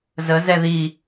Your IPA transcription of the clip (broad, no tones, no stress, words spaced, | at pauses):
zəzɛ ði